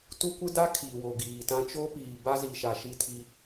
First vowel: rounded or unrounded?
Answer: rounded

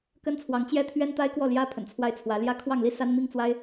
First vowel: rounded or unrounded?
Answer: unrounded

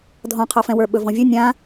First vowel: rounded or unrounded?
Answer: rounded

